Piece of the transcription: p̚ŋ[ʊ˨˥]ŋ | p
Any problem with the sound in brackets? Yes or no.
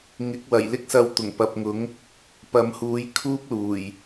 no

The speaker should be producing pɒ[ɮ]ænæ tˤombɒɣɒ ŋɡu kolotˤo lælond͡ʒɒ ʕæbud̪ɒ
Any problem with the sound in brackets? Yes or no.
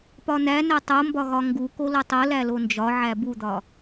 yes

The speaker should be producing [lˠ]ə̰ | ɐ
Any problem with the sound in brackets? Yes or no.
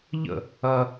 yes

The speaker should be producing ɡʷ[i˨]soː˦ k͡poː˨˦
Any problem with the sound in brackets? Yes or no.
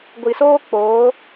no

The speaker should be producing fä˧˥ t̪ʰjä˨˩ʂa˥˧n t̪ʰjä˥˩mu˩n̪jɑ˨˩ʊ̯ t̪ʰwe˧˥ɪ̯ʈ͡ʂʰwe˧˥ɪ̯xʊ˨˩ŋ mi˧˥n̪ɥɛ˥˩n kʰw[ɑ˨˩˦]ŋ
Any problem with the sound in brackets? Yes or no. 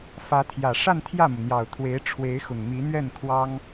yes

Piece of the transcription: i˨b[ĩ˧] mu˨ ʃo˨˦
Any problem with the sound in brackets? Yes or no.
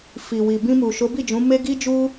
no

